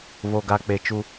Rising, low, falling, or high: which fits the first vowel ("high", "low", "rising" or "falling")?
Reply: low